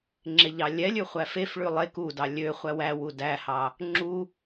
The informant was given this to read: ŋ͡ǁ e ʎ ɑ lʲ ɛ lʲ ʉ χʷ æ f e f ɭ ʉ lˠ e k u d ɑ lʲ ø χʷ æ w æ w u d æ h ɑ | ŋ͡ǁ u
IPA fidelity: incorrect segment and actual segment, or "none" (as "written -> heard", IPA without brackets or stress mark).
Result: none